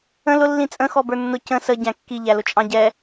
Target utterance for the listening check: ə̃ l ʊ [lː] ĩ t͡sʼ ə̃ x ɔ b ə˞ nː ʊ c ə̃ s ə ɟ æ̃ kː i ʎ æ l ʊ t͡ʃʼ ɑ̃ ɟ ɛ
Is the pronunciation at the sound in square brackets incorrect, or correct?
correct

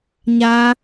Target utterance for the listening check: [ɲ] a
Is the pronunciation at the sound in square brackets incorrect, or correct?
correct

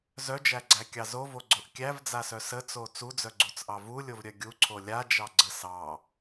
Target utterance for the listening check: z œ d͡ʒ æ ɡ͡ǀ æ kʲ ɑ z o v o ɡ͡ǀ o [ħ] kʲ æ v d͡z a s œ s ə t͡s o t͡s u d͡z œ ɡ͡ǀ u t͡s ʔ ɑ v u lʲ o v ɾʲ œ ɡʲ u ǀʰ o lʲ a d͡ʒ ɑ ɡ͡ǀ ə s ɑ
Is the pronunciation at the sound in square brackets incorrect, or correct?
incorrect: ʔ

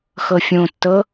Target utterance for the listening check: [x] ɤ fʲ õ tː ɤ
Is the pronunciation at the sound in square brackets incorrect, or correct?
correct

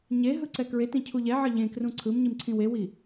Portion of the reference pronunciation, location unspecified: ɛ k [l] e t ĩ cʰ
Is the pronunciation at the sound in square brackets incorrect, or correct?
incorrect: ɹ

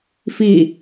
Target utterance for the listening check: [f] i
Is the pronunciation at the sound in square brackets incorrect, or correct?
correct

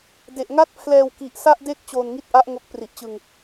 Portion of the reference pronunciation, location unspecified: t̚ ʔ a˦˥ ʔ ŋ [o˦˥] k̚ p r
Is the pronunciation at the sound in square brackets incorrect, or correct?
correct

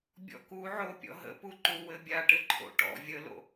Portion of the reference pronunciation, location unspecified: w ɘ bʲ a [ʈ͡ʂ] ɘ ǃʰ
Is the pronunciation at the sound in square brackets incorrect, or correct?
incorrect: ʈ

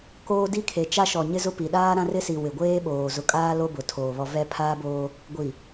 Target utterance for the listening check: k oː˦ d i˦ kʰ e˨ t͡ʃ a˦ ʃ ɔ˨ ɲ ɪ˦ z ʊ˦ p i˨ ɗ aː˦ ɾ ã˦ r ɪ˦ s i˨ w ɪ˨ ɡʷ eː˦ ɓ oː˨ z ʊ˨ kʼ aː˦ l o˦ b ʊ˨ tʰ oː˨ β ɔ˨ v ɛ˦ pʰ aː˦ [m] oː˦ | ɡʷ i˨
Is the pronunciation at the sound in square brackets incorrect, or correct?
incorrect: b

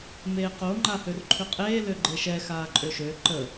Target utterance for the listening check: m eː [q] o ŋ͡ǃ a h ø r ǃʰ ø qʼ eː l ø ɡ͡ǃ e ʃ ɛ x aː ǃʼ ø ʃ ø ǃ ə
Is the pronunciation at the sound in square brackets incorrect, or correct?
correct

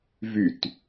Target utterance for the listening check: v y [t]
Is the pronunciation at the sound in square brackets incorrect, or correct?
correct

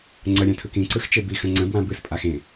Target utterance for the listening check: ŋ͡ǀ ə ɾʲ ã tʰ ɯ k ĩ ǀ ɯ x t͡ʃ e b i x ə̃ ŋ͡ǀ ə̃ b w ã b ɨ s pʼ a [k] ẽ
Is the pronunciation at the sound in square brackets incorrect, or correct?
incorrect: x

